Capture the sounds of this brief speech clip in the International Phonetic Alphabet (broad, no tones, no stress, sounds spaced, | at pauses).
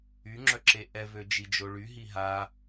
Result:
y ŋ͡ǁ œ ǁ e ʔ ɛ v ø d͡ʒ i d͡ʒ o ɭ y ɦ i ɦ a